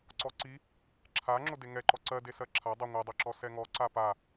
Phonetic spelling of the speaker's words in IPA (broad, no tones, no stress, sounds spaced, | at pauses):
ǀ ɔ ǀ i | ǁʰ a ŋ͡ǁ o d e ŋ ɛ ǃ ɔ ǀ ɜ d e s ɜ ǁʰ a dˤ a ŋʷ ɜ dˤ o ǁ ɔ s ɛ ŋ ɔ ǀ a p a